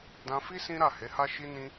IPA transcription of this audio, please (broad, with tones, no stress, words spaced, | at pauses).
dã˧fi˦ sĩ˦ɾa˦˨ he˨˦ha˦ ʃi˦nĩ˦